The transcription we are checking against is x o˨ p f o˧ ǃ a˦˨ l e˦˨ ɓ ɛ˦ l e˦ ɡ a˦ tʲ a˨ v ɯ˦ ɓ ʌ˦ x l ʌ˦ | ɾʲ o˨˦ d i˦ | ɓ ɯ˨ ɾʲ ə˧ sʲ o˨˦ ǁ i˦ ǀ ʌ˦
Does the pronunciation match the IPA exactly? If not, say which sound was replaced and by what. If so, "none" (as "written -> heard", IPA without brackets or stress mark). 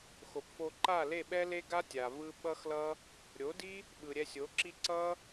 ə˧ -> ɛ˧